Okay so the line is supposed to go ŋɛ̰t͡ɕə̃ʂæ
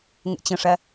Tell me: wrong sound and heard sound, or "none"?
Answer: none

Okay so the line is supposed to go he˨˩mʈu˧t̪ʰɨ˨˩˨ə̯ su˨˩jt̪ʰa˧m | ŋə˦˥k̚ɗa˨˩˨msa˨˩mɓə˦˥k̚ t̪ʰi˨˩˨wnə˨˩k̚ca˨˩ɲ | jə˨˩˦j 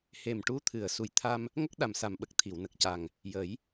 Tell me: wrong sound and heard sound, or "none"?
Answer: ɲ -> ŋ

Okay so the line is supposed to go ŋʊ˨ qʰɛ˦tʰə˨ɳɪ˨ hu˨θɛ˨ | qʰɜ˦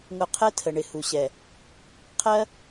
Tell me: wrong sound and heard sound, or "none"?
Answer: θ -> ɕ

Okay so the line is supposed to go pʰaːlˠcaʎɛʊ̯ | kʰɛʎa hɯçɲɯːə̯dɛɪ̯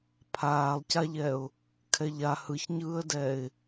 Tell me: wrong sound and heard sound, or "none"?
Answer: none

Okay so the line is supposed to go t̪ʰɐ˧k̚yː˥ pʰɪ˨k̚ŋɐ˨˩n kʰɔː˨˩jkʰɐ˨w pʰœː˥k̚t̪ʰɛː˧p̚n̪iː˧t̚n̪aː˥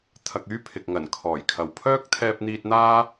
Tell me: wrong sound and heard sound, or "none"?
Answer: none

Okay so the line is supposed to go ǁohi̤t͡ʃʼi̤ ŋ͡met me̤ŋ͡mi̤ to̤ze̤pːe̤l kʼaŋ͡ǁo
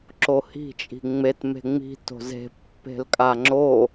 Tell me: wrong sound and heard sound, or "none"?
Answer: none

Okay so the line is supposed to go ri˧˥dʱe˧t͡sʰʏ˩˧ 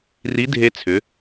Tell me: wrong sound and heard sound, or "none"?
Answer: none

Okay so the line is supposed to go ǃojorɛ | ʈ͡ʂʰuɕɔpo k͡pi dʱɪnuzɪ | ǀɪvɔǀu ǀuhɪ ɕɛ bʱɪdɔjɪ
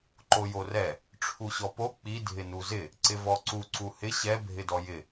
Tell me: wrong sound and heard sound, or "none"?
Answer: none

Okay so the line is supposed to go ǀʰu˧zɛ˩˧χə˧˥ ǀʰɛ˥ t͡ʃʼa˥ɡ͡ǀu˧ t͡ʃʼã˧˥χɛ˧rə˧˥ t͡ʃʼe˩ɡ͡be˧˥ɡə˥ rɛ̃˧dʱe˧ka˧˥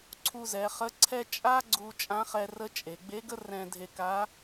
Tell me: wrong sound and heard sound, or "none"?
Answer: none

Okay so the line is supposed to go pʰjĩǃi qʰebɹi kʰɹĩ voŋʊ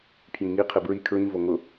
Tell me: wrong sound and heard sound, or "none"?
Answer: ǃ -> ŋ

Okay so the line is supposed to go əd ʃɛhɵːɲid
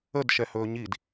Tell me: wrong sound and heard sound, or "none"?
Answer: none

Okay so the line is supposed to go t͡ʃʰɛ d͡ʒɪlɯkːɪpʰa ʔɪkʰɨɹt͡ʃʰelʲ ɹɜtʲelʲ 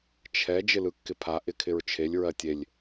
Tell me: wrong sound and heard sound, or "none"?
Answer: ɨ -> ɪ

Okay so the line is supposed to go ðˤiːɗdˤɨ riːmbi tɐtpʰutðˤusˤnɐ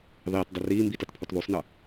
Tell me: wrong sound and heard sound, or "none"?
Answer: ɗ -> t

